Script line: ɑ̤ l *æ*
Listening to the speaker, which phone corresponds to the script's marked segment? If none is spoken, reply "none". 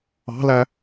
æ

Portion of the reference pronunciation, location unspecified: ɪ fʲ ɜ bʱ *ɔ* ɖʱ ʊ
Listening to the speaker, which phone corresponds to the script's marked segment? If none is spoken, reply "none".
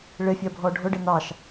ɔ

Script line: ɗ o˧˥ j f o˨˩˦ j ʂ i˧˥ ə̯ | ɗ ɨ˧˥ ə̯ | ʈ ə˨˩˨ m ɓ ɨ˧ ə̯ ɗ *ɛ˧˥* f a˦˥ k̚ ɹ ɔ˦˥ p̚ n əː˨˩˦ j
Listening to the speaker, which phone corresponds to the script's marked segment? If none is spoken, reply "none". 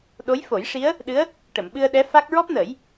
ɛ˧˥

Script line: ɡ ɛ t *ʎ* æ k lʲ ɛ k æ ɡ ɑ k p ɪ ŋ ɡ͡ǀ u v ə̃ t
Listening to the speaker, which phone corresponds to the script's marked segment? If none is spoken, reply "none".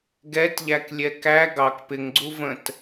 ʎ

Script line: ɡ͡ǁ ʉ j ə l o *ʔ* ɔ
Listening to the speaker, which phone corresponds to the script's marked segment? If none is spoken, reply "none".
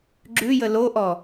ʔ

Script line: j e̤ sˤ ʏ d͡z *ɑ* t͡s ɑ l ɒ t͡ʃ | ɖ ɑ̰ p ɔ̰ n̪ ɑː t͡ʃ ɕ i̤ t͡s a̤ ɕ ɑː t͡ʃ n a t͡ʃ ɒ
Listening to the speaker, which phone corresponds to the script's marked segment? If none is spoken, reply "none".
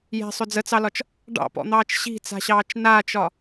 ə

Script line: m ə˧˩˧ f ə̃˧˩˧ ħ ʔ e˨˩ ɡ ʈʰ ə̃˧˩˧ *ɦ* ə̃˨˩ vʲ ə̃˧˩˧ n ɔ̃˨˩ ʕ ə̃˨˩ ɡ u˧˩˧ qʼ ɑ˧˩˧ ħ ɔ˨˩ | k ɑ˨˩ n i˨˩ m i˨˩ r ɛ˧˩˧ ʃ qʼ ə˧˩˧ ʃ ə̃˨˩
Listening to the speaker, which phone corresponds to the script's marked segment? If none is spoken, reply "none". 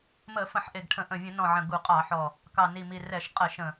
ʔ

